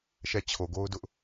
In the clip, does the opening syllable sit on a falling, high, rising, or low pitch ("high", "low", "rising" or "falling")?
falling